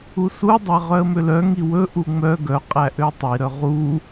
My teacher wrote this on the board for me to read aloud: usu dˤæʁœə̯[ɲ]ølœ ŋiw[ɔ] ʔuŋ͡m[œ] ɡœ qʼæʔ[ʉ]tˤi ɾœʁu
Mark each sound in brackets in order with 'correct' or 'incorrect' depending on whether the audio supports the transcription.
incorrect, incorrect, correct, incorrect

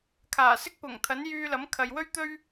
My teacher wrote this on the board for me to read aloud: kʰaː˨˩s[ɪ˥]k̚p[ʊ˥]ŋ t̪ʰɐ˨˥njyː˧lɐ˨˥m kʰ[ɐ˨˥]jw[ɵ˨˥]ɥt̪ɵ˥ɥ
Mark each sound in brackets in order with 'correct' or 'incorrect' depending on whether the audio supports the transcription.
correct, incorrect, incorrect, incorrect

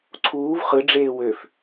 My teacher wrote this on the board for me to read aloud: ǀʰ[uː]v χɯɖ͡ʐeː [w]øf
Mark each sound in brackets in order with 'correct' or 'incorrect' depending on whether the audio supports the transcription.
correct, correct

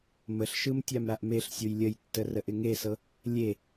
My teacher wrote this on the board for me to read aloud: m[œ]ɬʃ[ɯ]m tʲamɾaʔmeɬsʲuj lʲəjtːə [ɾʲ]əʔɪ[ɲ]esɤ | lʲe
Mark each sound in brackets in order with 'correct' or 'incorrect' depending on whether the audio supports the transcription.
incorrect, correct, incorrect, incorrect

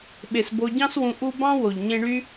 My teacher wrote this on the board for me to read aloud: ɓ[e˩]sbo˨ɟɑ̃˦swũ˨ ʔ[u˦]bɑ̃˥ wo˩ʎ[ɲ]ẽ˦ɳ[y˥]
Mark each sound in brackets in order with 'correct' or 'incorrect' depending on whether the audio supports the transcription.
correct, correct, correct, correct

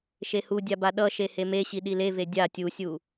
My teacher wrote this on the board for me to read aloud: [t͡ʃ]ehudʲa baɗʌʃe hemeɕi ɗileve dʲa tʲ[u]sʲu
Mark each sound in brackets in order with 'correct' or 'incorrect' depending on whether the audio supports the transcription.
incorrect, correct

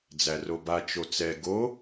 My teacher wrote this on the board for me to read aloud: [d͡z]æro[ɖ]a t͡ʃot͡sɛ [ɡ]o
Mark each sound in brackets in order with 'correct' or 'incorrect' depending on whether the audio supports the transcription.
correct, incorrect, correct

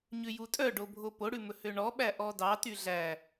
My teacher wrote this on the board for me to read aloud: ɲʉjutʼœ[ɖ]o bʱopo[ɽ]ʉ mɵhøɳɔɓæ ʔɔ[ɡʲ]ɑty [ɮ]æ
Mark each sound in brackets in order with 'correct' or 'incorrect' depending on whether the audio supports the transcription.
correct, correct, incorrect, correct

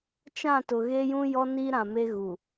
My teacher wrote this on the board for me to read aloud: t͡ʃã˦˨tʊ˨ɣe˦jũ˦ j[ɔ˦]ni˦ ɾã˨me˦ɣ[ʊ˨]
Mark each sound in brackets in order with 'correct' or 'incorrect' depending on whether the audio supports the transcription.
correct, incorrect

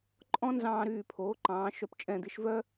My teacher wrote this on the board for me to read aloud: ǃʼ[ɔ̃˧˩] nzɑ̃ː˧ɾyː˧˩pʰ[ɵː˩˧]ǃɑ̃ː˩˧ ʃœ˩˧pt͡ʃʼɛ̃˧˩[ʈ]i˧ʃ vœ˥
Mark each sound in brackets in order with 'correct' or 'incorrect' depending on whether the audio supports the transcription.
incorrect, incorrect, incorrect

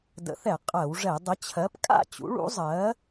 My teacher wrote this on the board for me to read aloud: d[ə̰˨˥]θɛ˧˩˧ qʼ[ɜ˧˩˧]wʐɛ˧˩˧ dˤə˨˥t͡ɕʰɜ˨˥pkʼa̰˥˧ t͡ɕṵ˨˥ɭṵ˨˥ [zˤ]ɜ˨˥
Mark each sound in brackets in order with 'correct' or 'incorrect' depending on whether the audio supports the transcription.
correct, correct, correct

